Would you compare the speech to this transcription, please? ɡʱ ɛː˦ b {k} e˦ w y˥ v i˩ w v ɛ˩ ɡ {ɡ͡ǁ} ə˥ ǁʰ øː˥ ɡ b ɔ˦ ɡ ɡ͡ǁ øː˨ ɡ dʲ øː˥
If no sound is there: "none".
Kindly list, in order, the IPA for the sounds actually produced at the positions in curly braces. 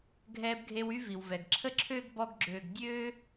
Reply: ɡʱ, ǁʰ

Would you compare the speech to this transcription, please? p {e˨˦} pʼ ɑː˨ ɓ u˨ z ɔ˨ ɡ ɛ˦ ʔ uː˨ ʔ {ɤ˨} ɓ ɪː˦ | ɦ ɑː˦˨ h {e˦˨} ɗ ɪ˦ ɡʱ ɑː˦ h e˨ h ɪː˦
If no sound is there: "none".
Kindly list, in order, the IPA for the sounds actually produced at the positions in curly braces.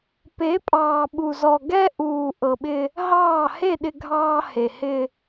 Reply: e˨˦, ɤ˨, e˦˨

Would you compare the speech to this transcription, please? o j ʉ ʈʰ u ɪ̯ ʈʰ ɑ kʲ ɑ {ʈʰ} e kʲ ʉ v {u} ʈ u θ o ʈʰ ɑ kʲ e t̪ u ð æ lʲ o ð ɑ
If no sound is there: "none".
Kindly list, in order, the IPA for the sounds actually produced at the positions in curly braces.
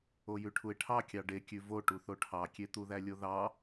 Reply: ɖ, o

